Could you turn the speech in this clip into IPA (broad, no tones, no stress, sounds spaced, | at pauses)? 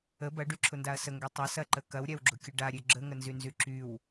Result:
ə b ɐ ɖ y ǁʰ ʊ n d a ɐ̯ s ə ŋ ɡ ø tˤ ɐ s ɐ ǃ ə k ɐ w ɾʲ a w ɡ͡ǁ ʊ kʲ ə ɖ a ɾʲ ø ɡ͡ǁ ə ŋ ə n z y n z y ǁ y w